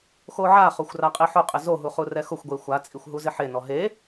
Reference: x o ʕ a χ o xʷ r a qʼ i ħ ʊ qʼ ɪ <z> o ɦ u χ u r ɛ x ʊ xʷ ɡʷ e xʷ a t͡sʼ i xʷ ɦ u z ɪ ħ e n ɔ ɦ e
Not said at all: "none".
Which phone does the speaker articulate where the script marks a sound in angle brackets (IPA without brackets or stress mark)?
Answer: z